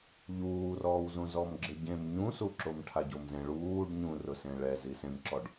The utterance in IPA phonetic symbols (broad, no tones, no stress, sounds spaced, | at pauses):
ʎ uː r ɔː w z ũ z ɔ m ɡ͡ǁ ɪ ɟ ẽ m ɲ ũ s u ǁ o m ʈʰ a ɟ o m z ẽ ɭ uː ɖ ɲ ũ r ʊ s ẽ ɭ ɛ z i s ẽ m ǁ ɔ ɖ